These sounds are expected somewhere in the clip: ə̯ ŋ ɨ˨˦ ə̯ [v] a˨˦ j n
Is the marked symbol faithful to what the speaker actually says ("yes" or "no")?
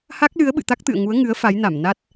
no